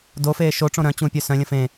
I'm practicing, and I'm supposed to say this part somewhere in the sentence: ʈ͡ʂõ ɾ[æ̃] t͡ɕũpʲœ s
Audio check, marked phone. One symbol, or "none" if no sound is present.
œ̃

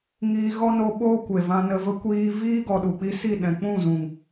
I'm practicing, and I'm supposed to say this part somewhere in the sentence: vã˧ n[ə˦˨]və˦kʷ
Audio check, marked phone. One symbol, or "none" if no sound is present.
ə˧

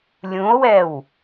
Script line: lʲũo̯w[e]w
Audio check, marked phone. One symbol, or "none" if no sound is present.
ɛ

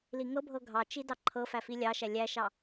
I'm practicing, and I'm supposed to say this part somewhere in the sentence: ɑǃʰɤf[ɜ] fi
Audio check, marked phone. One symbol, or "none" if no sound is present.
æ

